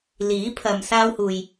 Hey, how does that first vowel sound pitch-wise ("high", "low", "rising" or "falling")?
rising